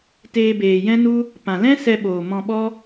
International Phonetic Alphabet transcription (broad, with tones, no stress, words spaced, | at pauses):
teː˧beː˨jɛ̃˦nu˦ | pã˨lɛ̃˦sɛ˧ɓoː˨ mɔ̃˧ɓɔ˦